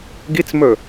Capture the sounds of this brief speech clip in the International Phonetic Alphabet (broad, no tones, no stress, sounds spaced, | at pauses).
ɡ i t͡s m ɵ